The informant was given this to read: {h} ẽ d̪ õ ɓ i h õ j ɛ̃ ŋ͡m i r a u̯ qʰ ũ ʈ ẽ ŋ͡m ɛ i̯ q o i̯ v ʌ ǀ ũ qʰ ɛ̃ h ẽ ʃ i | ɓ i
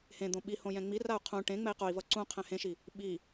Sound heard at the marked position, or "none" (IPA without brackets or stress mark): h